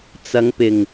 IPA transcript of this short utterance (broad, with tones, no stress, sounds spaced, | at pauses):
t͡s ɐ˨˧ ŋ p ɪ˨˩ ŋ